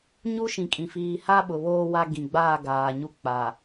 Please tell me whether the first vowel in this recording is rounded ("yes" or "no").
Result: yes